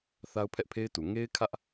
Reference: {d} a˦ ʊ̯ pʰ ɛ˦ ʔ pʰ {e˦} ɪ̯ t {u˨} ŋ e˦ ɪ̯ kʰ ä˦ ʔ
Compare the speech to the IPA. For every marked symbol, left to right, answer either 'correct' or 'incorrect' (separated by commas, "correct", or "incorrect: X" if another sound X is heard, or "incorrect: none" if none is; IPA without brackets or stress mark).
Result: incorrect: θ, correct, correct